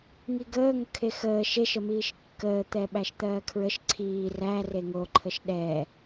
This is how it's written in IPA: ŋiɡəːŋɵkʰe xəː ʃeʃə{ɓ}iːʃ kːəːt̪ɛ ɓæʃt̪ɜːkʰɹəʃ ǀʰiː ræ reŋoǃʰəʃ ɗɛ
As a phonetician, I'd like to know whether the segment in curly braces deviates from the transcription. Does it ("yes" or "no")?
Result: yes